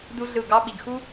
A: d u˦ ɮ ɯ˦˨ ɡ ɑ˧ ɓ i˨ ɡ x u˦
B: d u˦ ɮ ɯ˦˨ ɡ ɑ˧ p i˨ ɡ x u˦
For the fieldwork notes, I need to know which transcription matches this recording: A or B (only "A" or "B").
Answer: A